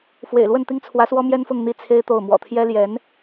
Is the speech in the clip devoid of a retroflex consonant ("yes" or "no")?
yes